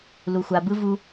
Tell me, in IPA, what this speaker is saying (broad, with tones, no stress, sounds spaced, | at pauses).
l u˩ xʷ a˩ b ɯ˥ v u˦